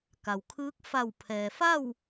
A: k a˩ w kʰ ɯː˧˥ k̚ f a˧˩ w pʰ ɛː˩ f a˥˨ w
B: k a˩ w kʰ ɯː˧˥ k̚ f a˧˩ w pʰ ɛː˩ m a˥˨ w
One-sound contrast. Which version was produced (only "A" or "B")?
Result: A